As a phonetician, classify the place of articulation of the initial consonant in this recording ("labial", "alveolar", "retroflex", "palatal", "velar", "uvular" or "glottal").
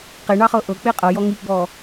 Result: uvular